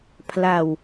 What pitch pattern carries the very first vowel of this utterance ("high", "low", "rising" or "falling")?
low